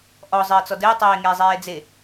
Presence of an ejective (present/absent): absent